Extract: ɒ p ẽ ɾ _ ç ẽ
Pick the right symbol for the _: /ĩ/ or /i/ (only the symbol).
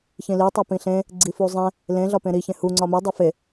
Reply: i